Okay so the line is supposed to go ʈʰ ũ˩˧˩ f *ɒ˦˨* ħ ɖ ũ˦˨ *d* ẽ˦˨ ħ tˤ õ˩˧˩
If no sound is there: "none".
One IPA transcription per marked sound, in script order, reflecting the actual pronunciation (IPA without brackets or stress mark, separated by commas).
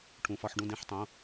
ɒ˦˨, d